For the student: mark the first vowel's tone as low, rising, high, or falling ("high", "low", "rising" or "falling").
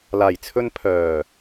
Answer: low